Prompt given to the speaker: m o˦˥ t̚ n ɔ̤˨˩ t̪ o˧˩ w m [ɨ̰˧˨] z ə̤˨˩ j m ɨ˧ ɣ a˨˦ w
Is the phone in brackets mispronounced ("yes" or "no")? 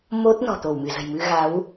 yes